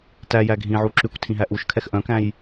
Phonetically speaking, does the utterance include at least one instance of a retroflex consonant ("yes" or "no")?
no